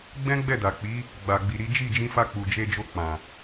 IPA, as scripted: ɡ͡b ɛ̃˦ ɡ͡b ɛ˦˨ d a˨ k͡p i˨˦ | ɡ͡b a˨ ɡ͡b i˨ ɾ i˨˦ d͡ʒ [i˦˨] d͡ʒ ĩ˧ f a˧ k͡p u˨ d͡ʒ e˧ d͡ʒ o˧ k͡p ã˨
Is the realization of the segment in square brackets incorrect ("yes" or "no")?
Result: no